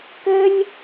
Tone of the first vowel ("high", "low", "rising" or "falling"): high